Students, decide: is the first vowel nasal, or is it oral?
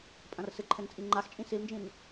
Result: nasal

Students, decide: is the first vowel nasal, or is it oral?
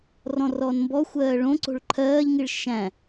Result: nasal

